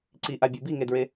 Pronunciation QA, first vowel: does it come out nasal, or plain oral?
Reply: oral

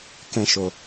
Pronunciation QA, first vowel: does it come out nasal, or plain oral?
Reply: nasal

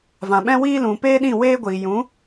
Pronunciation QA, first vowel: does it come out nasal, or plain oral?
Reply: nasal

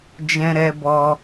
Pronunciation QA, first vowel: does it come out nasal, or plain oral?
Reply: nasal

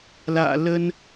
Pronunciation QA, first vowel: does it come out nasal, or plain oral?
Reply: oral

